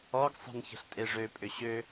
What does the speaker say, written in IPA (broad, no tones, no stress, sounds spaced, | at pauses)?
ɔ ɡ sˤ ə̤ n ç ə̤ ɬ tʼ e ʐ ø pʼ ʏ ɕ ø